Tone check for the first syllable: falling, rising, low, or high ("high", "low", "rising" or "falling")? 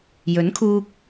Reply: rising